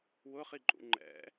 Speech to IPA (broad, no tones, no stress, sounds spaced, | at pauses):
w ʊ χ i ǃʼ ṵ ŋ͡ǃ ɛ̰